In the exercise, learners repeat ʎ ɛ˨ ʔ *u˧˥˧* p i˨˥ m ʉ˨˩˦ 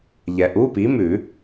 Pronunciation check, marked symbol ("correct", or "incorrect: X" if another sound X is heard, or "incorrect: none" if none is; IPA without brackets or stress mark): correct